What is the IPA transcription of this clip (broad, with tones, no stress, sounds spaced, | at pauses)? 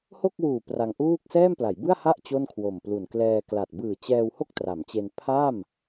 h o˥˩ k̚ w uː˨˩ p r a˧ ŋ ʔ uː˥˩ k̚ s ɛː˥˩ m p l a˩˦ j b ɯ˥˩ a̯ h a˥˩ ʔ t͡ɕ o˥˩ n kʰ w o˨˩ m p l u˨˩ n k l ɛː˧ k l a˨˩ t̚ b ɯː˨˩ t͡ɕ ɛː˧ w h o˥˩ k̚ t r a˩˦ m t͡ɕ e˧ n pʰ a˥˩ m